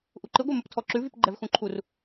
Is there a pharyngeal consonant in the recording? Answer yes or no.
no